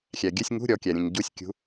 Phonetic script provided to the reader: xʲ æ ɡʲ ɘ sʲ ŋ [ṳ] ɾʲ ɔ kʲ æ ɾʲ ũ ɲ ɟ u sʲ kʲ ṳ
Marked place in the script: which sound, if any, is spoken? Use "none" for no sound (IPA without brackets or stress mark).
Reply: ṳ